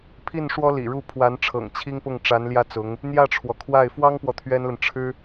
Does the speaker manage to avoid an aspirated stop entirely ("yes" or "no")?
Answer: no